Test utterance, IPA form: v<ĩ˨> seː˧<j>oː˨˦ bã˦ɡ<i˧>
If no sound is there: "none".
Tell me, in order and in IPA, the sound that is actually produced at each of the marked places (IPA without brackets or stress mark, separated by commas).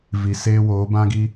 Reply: i˨, w, i˦